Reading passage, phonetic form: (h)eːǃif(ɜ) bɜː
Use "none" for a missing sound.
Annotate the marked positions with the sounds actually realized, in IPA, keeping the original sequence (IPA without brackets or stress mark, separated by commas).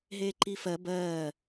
ɦ, ɜ